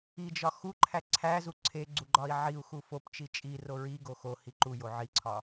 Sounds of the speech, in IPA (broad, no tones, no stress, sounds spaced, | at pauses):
i d͡ʒ ɒ x u ǃʰ æ ǀʰ æ z u ǀʰ e ɡ͡ǀ u ɡ͡ǃ ɒ i̯ ʕ i u̯ x u f o p t͡ʃ i t͡ʃʼ i r o ɹ i ɡ o x o h i ǃ u j o ʕ i ǀʰ ɒ